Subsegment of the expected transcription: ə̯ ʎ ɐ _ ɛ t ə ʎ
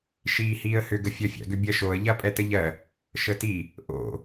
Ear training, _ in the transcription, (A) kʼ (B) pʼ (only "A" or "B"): B